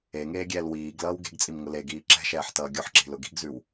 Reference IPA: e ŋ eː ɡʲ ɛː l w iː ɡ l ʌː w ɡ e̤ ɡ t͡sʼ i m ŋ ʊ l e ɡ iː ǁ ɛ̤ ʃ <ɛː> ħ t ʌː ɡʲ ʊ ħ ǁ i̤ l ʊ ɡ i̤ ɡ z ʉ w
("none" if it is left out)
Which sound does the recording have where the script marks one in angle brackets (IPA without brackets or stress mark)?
ɛː